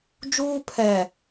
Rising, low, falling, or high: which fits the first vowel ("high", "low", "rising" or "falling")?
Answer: high